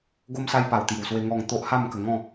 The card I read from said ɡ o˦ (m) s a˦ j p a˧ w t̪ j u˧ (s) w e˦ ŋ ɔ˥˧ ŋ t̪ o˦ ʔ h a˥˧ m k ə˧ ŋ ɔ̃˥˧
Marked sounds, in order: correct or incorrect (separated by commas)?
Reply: correct, correct